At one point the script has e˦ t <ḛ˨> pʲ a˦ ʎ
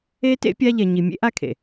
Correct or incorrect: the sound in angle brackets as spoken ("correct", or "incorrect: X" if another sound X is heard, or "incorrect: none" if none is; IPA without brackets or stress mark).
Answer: incorrect: ḛ˦